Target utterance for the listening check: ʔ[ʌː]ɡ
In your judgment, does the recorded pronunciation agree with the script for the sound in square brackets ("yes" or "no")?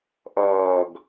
yes